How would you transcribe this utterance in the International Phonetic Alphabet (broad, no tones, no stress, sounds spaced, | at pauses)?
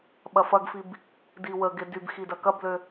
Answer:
ɓ ɐ f ɐ ɡ f i b | d i w ə ɡ e d y b x i d ɐ k ɐ b l ø